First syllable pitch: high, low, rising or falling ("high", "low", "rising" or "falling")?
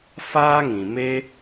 high